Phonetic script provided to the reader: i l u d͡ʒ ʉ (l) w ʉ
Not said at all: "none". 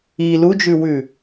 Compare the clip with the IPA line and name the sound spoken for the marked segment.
none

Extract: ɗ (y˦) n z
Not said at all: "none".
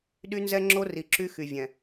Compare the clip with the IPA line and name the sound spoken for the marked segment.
y˦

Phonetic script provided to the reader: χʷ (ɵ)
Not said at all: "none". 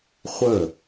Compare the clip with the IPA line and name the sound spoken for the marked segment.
ə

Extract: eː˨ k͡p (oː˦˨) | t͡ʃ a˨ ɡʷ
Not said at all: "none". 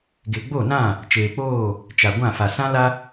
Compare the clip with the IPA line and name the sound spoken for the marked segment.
oː˦˨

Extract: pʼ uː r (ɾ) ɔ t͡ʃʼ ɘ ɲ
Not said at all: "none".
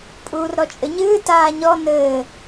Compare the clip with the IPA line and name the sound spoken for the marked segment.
ɾ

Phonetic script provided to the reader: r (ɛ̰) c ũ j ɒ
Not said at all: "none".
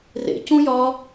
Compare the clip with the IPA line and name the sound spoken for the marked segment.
ḛ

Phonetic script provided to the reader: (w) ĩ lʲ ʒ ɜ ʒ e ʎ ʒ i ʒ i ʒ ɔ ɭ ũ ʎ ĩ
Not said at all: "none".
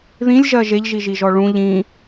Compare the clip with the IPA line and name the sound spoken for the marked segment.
ð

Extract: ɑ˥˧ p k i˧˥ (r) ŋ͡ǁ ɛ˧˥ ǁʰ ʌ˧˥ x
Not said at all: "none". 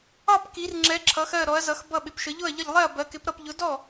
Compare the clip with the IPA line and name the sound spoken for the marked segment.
r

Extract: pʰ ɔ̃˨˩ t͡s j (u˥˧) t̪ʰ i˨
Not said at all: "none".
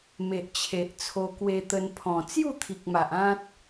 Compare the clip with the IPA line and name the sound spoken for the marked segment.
u˥˧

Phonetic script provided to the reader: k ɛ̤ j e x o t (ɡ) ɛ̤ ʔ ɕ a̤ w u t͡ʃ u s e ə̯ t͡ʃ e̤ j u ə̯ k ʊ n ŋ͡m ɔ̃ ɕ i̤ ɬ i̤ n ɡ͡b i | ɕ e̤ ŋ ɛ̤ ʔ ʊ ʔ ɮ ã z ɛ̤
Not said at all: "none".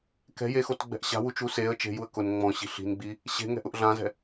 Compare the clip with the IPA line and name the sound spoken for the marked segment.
ɡ͡b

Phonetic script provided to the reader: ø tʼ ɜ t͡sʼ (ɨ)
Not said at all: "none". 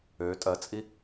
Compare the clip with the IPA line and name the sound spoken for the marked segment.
i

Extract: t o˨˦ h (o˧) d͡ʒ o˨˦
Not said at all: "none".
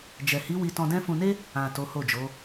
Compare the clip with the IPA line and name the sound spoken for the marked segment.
o˦˨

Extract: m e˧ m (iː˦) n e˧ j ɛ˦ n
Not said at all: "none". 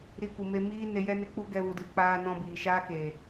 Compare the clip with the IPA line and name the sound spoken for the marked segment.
iː˦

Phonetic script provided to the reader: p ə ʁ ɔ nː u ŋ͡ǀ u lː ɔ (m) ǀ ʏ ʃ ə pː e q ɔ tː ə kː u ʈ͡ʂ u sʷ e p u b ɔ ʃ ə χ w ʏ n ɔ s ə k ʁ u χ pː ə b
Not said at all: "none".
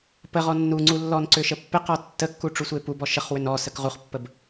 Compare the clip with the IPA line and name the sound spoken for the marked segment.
n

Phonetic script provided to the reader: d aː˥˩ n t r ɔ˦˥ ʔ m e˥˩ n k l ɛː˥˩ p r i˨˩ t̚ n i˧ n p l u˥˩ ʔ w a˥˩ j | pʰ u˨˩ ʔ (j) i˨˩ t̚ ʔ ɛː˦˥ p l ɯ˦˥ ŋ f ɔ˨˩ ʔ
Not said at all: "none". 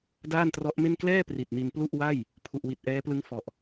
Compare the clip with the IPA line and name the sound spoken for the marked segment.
w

